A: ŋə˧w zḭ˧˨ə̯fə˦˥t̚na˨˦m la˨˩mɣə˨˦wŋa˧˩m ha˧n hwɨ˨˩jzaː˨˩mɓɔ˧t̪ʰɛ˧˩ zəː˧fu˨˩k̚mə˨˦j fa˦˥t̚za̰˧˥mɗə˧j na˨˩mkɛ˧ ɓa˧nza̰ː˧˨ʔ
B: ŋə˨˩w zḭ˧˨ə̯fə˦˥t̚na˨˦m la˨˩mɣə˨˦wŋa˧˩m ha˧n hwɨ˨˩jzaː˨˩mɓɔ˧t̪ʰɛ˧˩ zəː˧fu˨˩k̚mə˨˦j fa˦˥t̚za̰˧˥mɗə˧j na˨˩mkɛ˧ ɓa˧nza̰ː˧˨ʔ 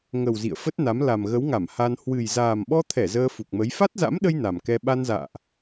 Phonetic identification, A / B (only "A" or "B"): B